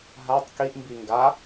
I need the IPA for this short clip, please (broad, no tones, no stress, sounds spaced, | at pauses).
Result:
ɦ a tˤ k i ʔ m b i ŋ ɡ a